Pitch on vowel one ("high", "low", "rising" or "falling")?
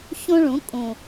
high